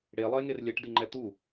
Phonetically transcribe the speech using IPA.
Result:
ɽ e lˠ ə e̯ ŋ e r lʲ ɛ ʈ d i ŋ͡ǃ ɛ t̪ u

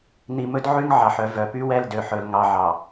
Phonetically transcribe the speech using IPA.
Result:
n̪ i˨ m ɵ˦ d ʕ y˦ ŋ ʕ ɑ˨ ħ œ˨ v œ˨ p y˦ w ɛ˦˨ l d ø˨ ħ ɵ˨ l ŋ ɑ˨ ʕ ɑ˨

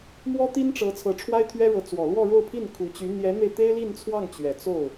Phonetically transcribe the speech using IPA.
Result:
m w ɔ˥ t̪ i˥ n ʈ͡ʂ ɤ˧˥ t͡sʰ ɤ˧˥ ʈ͡ʂʰ w a˥ ɪ̯ t̪ʰ ɥ ɛ˥ ɻ ɤ˧˥ t͡s w ɔ˨˩ l w ɔ˥˧ ɻ o˥˧ ʊ̯ pʰ i˥˩ n kʰ u˧˥ t͡ɕ y˧˥ n̪ j ɛ˧˥ n̪ e˧ ɪ̯ t̪ e˥ ɪ̯ l i˥˧ n t͡sʰ w ɑ˥˩ ŋ t͡ɕ ɥ ɛ˨˩ t͡s o˥˩ ʊ̯

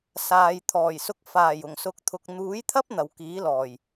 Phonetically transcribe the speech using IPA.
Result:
s aː˨ j t̪ʰ ɔː˨˩ j s ʊ˧ k̚ f aː˨˩ j ʊ˨˩ ŋ s ʊ˨˥ k̚ t̪ʰ ʊ˨ k̚ n̪ uː˨˥ j t̪ʰ ɐ˥ p̚ n̪ ɐ˨ w k iː˨˥ l ɔː˨˩ j

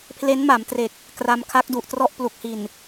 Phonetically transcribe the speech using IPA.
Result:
pʰ l e˦˥ n m a˩˦ m t r e˨˩ k̚ | k r a˧ m kʰ a˦˥ k̚ d u˨˩ ʔ t r ɔ˥˩ ʔ p l u˨˩ k̚ h i˨˩ n

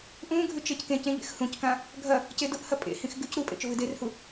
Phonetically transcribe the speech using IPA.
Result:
ʔ ũ ɡʱ ʉ t͡ʃ e c k ẽ c ẽ ʎ ḛ x h ũ c k ã | ɡʱ ɐ | c e d ʊ ʔ h ɐ pʼ ḛ h ĩ x ɡ ʉ c ɾ u pʼ ḛ t͡ʃ ʊ v ɨ d e r h u

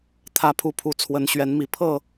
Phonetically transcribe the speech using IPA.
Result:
t̪ʰ ä˨˦ pʰ u˨˩ pʰ u˨˦ t͡sʰ w ə˨˦ n ɕ ɥ ɛ˨˦ n m i˨˩ pʰ ɤ˥˨

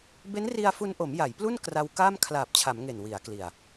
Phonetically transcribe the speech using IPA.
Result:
b e˦˥ n r i˧ a̯ f u˧ n ʔ o˩˦ m j a˩˦ j p l u˥˩ n k r a˧ w k aː˥˩ m kʰ l aː˨˩ p̚ t͡ɕʰ a˩˦ m ŋ e˨˩ n w i˩˦ a̯ k l i˨˩ a̯

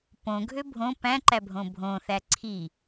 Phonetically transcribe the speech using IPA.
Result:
p õ ɡʱ ø bʱ õ p æ̃ ǃ æ bʱ õ bʱ õ θ æ ǀʰ i

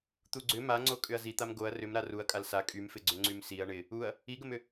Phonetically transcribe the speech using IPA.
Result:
t̪ u ɡ͡ǀ ʏ m a ŋ͡ǀ o kʼ ʏ ɐ̯ z i t̪ a m ɡ o ɐ̯ r ʏ m ɾ a r u ɐ̯ kʼ a l s a kʼ y m f ɪ ɡ͡ǀ ʏ ŋ͡ǀ y m s i ɐ̯ ɳ ɪ | u ɐ̯ | i ɡ ə m ʏ

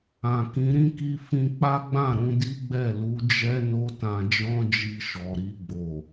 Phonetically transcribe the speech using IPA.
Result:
ã˨ k ĩ˨˦ ɾ ĩ˦ k i˦ f ĩ˧ k͡p a˦ ɡ͡b ã˦˨ ɾ ũ˧ d i˦ ɡ͡b ɛ˦˨ l u˨˦ d͡ʒ ɛ˦ n o˦ t ã˧ d͡ʒ ɔ̃˦ d͡ʒ i˧ ʃ ɔ˨ ɾ i˧ ɡ͡b o˨

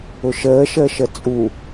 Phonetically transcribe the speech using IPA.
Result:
ʊ ʃ əː ʃ əː ʃ ə t͡sʼ u

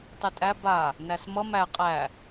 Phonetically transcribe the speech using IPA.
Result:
tˤ y tʼ æ b a | n æ s m ʌ m æ qʼ æ

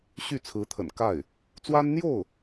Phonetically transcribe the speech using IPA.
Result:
ɕ y˥˩ t͡sʰ ɹ̩˧˥ t̪ʰ ə̰˨˩ n k a˥˩ ɪ̯ | t͡s w a˥ n n̪ j o˥˩ ʊ̯

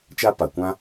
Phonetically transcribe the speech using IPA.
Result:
t͡ʃ a˦ p a˨ kʷ ã˦

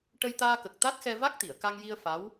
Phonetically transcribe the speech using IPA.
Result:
ʈ ə˧ j t̪ aː˧ k ə˨˩ k̚ t̪ a˦˥ t̚ x ɛ˧ v a˦˥ k̚ t̪ i˨˩˨ ə̯ k a˧ ŋ j i˧ ə̯ f a˧˥ w

